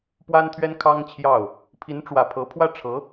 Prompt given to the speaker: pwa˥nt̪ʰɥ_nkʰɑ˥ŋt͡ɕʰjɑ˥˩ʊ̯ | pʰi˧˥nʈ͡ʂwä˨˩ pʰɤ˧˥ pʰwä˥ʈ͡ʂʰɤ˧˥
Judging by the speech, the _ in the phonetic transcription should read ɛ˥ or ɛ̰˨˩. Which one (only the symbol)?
ɛ˥